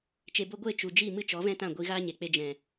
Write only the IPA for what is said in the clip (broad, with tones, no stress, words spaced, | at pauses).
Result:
t͡ʃe˨bo˧ ɡʷe˦˨t͡ʃu˨d͡ʒi˦˨ mɨ˦t͡ʃɔ˨˦vɛ̃˦tã˦˨ ɡʷi˧ ɣaː˦ɲe˨k͡pe˧ d͡ʒɛ̃˨